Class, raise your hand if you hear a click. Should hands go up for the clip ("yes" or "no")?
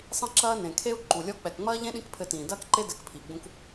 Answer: yes